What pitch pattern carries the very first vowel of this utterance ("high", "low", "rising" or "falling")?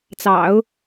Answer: low